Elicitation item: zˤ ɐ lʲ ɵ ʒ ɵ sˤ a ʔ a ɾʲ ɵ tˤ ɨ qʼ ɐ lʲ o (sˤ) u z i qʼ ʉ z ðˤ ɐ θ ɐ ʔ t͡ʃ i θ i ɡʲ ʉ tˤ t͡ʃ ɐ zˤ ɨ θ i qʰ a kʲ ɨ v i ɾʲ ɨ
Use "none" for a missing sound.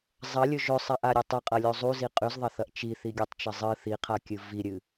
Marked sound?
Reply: zˤ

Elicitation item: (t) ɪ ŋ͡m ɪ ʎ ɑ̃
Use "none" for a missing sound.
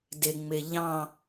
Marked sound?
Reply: d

